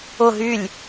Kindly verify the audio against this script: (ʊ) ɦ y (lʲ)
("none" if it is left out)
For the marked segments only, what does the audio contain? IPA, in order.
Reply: ʊ, lʲ

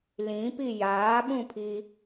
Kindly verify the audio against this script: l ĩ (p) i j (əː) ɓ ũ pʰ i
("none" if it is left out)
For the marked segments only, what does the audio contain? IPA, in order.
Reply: p, aː

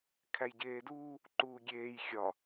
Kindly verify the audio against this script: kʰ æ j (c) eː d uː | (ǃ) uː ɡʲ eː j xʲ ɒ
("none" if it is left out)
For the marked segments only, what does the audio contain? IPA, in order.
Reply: ɟ, ǃ

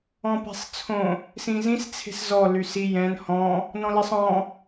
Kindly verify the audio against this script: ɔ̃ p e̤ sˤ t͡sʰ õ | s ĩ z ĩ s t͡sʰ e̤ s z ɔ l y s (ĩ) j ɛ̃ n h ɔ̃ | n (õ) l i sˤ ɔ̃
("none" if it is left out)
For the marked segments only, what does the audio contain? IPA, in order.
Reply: i, ɔ̃

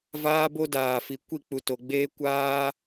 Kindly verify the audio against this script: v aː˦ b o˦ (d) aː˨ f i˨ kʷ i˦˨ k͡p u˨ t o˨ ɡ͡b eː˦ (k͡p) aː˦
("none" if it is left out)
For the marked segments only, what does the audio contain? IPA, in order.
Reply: d, kʷ

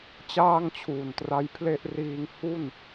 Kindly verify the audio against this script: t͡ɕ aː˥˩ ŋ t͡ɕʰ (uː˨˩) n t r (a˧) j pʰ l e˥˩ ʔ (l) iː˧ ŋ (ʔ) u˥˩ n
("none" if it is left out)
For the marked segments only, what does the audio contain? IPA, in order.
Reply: uː˨˩, a˦˥, r, h

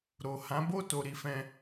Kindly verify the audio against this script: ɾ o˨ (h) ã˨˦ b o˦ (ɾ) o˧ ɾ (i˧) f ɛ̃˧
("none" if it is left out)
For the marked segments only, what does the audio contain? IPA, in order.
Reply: h, t, i˧

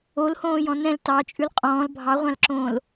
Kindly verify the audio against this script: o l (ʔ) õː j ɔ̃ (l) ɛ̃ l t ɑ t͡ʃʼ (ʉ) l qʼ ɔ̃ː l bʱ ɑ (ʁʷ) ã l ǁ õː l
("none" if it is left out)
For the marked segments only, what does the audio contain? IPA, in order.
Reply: h, n, ʉ, ʁʷ

